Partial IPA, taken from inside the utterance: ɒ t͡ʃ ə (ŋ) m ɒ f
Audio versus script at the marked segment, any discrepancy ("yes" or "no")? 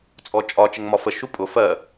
no